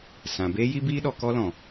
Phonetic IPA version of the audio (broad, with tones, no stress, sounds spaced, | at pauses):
s ã˨ b eː˦ j i˦ b iː˦ ɗ ɔ˧ k ɔ˦ l ɔ̃˨